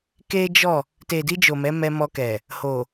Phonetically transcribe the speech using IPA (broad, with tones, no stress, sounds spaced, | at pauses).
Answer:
k e˦ d͡ʒ ɔ˦˨ | t e˨ d i˧ d͡ʒ o˨ m ɛ˨˦ m ɛ˧ m ɔ˧ k ɛ˨ | h o˨